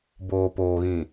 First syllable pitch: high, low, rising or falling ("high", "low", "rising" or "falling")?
low